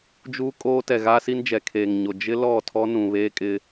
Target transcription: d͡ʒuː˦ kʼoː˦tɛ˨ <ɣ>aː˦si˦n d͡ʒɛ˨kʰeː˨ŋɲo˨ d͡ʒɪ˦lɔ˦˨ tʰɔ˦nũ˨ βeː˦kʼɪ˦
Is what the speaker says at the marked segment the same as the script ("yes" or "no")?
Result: yes